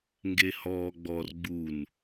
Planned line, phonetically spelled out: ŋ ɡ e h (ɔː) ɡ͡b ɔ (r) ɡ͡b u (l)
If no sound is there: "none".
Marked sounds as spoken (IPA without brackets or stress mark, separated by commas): ɔː, r, n